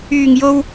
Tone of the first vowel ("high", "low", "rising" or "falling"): low